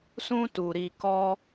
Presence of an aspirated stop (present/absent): absent